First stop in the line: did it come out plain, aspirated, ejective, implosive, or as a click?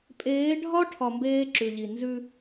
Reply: ejective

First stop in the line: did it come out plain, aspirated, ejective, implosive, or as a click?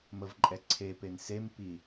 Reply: click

